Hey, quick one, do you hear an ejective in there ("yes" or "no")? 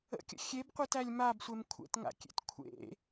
no